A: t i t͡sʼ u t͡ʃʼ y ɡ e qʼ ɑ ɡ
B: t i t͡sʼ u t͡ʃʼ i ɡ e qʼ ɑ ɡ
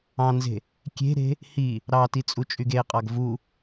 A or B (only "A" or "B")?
A